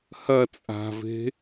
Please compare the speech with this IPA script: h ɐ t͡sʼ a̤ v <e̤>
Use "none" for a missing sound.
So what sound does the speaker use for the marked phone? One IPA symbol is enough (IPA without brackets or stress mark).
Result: e̤